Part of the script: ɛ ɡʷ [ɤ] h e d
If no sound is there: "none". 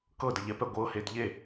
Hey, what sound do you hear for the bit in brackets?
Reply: ɤ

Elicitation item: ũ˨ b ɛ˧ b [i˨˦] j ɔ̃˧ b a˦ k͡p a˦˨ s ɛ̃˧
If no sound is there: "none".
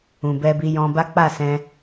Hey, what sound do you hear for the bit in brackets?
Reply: i˧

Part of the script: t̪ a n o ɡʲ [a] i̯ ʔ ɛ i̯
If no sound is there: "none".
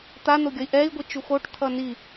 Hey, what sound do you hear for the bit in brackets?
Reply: ʌ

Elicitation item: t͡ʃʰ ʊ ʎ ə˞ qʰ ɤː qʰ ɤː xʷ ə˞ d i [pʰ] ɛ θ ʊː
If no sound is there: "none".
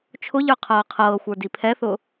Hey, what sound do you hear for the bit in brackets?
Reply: pʰ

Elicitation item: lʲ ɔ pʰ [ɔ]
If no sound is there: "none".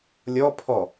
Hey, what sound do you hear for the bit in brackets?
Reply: ɔ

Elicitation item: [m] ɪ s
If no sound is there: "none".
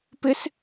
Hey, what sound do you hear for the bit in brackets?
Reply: p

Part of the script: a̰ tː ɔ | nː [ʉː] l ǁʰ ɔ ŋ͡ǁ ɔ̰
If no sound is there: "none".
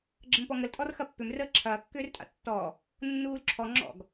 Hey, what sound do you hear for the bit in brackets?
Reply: uː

